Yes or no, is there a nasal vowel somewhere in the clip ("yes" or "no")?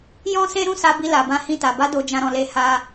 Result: yes